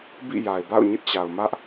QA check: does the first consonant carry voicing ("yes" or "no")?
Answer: yes